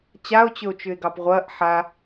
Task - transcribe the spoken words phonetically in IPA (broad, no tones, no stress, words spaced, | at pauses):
t͡ɕao̯t͡ɕɵo̯t͡ʃʏe̯ɡɑp ʁʷɐːʔ ħa